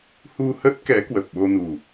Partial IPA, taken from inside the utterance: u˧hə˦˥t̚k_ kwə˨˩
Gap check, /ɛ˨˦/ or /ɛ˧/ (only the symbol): ɛ˨˦